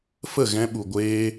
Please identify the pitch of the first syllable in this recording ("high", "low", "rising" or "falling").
falling